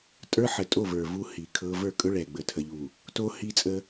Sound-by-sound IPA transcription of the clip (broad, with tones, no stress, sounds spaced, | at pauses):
tʼ ə˞˦ ħ ə˨ tʼ o˦˨ v ə˞˨ v u˦ h i˨ kʰ ɤ˦ v ə˞˦˨ kʼ ɵ˦ ɭ ɛ˨ ɡ͡b ə˨ tʰ ə˨ ʎ u˨ | t o˦ h i˦ t͡sʼ ə˦